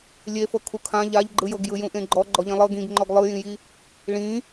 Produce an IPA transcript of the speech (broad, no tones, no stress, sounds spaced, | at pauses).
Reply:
lʲ e f ɤ kʰ u kʰ ã ʎ a ʎ ɡ͡ǃ ɯ j ɤ ɡ j ɯ j ũ ʔ ẽ ɡ͡ǃ ɔ ɡ͡ǃ ɔ ʎ ĩ lˠ ɤ ɡ ĩ ɡ ŋ͡ǃ ɔ ɡ lˠ ɯ j ĩ j i | ɭ ĩ